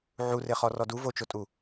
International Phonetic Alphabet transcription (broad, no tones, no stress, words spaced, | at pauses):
ʕureχɔ rɔdu vot͡ʃotʼu